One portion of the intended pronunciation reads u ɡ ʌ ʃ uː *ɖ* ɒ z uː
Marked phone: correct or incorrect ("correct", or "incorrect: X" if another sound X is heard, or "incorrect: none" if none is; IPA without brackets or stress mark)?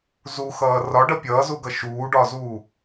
correct